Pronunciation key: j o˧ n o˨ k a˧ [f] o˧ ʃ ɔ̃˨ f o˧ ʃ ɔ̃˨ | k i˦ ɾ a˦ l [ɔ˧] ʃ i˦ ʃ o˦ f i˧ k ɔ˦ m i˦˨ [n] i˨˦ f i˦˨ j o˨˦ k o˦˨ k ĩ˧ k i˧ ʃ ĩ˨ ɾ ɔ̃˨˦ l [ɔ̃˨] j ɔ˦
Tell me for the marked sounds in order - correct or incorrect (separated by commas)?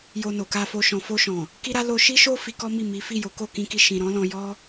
correct, incorrect, incorrect, incorrect